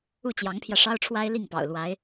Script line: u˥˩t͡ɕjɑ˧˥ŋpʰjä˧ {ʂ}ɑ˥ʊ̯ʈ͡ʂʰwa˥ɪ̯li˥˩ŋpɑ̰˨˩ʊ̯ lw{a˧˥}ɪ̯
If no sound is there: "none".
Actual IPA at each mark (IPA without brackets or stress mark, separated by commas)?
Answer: ʂ, a˧˥